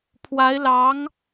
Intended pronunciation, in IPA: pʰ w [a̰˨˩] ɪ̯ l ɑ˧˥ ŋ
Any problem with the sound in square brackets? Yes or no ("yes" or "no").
yes